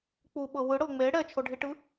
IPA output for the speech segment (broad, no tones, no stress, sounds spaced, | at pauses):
k͡p u ɓ ɤ w ɯ ɽ ɤ ŋ͡m e ɽ ɛ t͡ʃʰ o ɖʱ i ʈ ɯ